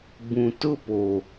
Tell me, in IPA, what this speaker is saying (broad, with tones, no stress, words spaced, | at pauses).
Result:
bũ˨tʊ˦ po˨